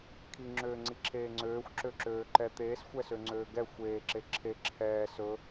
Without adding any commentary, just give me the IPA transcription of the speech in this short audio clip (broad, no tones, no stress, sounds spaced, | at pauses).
kʰ i ŋ͡ǁ øː ŋ͡ǀ i ǁʰ eː ŋ͡ǀ øː xʷ ǁ ø ǁ øː ǃ ɛ t̪ eː s xʷ ɛ s ø ŋ͡ǀ øː ɡ ɛ xʷ eː ǁ e ǁʰ e ǁʰ ɛː s ɵ